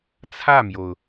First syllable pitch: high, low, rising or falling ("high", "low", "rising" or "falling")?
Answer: falling